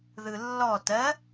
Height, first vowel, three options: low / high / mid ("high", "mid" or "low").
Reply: high